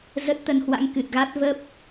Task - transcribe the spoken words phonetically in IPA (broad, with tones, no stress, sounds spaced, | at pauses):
z ə˦˥ t̚ t̪ ə˧ n h w a̰˧˥ ŋ k ɨ˨˩ t̚ ɣ a˦˥ t̚ v ə˦˥ p̚